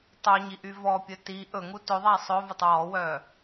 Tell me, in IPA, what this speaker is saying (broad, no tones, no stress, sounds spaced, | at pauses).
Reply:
tˤ ɵ ɲ i ʔ y v ɔ pʲ ɵ t i ʔ ɵ ŋ u t ɵ ðˤ æ sˤ ɵ v ɵ tˤ w ɔ w œ